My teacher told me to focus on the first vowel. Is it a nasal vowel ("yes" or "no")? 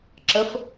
no